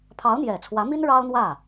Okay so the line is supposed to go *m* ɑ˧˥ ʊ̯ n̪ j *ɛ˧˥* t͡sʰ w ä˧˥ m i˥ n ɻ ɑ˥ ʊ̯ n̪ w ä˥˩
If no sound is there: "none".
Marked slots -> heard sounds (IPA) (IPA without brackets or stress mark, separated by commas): pʰ, ɛ˨˩